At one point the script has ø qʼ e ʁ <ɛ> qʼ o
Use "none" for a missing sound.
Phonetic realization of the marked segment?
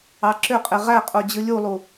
æ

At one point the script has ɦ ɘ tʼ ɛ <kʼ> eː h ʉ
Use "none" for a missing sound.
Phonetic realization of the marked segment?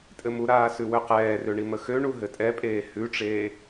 pʼ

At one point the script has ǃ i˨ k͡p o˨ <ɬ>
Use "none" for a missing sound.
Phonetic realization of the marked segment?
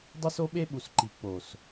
s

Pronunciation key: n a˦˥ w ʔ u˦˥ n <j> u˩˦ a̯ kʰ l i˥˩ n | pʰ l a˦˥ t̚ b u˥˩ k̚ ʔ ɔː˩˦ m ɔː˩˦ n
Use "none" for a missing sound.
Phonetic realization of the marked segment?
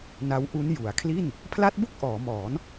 j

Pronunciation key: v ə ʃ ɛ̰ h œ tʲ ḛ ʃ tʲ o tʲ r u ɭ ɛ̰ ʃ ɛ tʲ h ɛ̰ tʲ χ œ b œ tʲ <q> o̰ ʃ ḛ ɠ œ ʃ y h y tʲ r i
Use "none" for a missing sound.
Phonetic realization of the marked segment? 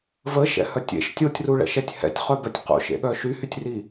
q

